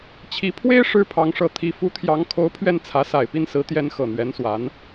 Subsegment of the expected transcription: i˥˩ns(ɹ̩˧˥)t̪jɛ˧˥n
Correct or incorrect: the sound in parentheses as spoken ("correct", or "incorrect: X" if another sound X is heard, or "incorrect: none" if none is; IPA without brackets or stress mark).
correct